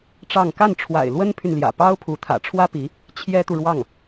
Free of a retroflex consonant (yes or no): no